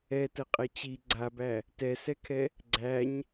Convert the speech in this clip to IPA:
ɛ t ə qʼ ɛ t͡ɕ i ɡ͡ǀ a b æ | t ɛ s ɛ kʰ ɛ | ɡ͡ǀ æ ɲ

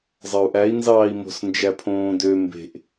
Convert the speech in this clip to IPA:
zˤ ɑ u̯ ʔ æ i̯ n z ɑː i̯ m o̤ s n d͡ʒ æ pʰ õː d ø m b e̤ ʔ

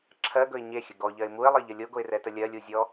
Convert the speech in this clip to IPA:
ǁʰ ɜ ɡ ɵ ɪ̯ ɲ e xʲ ə ɡ ɔ ʎ ɜ ɪ̯ m u ɪ̯ lˠ ɜ ʎ ə lʲ o ɡ o ɪ̯ r ɛ t ə lʲ ɜ lʲ u zʲ ɔ

